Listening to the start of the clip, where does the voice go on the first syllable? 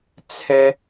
high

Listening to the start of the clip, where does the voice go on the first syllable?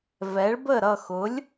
rising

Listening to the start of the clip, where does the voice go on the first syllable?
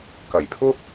low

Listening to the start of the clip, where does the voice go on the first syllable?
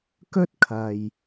high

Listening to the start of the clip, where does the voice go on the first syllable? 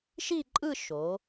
falling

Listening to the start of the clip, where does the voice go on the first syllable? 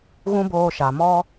high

